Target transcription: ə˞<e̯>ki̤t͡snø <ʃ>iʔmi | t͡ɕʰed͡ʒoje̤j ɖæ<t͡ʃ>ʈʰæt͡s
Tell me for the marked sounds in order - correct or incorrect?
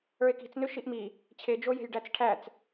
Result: correct, correct, incorrect: t͡s

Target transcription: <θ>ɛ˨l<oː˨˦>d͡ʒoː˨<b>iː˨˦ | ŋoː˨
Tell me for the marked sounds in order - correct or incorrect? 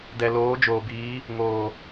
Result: incorrect: d, correct, correct

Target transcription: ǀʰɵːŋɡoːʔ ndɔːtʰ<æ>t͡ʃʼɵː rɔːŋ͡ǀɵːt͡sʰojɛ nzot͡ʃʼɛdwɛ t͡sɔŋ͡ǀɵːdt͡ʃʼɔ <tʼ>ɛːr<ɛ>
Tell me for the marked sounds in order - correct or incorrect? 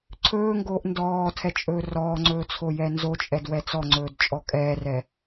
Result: incorrect: ɛ, incorrect: kʼ, correct

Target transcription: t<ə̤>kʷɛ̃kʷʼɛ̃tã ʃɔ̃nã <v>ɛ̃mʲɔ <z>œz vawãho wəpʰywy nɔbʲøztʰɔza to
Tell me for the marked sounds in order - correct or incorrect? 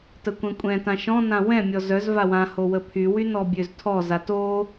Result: incorrect: ə, incorrect: w, correct

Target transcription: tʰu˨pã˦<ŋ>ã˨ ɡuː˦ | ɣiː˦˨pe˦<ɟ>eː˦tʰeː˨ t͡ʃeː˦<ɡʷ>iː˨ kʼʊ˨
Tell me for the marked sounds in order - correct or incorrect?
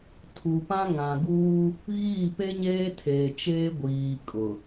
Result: correct, incorrect: ɲ, correct

